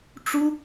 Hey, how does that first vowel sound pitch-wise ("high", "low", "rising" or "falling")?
high